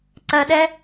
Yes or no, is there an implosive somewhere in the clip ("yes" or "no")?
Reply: yes